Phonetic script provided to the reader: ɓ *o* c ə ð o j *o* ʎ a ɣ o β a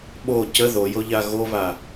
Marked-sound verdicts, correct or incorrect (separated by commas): correct, correct